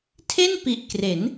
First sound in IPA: tʰ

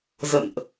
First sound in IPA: z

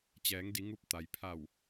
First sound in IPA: t͡ɕ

